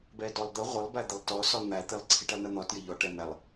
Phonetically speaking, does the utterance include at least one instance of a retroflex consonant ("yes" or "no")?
yes